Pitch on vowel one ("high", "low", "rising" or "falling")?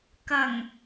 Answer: low